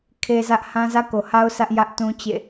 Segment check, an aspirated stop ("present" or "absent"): present